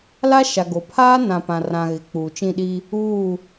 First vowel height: low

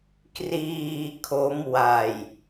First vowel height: high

